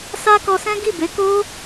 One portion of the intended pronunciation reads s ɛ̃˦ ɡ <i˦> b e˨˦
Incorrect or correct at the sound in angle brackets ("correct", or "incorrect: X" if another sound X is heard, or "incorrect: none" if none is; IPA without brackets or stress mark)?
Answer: incorrect: i˦˨